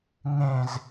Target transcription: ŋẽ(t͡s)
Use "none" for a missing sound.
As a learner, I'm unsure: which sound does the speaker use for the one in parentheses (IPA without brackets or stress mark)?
z